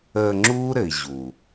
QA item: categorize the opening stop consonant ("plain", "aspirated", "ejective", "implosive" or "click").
click